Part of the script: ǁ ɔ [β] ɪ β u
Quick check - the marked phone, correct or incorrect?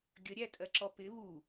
incorrect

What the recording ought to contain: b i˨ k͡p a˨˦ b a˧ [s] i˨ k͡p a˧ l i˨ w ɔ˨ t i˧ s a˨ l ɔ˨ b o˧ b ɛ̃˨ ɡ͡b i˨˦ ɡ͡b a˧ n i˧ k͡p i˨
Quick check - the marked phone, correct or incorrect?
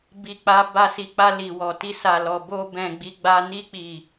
correct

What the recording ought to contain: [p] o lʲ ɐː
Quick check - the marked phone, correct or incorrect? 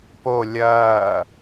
correct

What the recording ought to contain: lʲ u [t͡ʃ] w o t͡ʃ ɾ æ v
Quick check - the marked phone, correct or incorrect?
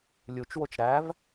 correct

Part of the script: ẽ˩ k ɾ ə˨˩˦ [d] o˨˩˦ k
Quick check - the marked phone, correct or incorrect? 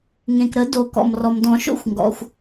correct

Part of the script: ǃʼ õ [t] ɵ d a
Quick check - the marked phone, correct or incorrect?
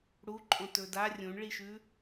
correct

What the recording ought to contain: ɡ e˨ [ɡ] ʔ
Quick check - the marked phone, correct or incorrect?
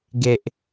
incorrect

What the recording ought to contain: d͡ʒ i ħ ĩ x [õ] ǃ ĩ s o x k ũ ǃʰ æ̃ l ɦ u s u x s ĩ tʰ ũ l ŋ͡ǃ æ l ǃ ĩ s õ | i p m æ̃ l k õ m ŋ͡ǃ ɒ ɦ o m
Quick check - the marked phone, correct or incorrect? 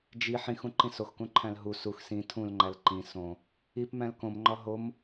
incorrect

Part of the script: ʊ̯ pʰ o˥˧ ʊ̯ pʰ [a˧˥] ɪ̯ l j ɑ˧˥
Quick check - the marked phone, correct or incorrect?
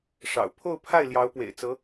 incorrect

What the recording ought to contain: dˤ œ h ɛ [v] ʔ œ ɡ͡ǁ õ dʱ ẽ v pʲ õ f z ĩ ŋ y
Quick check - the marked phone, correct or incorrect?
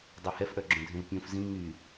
incorrect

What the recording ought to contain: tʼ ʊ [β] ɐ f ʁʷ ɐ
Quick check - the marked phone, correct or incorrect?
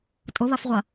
correct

